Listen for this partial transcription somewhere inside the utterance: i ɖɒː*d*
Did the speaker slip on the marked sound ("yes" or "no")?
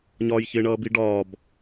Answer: yes